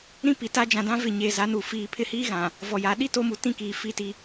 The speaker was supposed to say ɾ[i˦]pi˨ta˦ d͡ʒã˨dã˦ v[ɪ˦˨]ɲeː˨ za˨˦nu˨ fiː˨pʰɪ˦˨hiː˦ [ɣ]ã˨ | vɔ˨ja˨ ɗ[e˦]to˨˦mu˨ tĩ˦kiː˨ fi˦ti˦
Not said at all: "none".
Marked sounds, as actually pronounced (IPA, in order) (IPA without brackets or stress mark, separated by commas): ĩ˦, ɪ˦˨, ɣ, i˦